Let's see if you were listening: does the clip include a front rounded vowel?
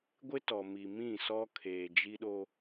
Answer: no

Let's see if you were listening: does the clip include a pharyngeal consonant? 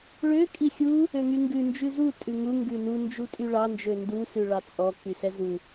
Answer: no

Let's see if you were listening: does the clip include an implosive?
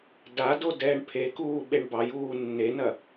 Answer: yes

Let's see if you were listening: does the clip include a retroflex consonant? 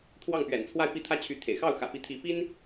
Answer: no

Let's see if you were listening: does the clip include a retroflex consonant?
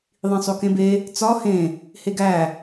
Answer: no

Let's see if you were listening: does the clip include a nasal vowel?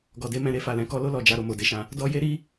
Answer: yes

